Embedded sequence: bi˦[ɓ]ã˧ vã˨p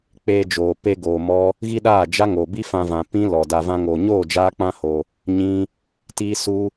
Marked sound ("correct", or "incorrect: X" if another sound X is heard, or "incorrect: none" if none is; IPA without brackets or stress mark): incorrect: f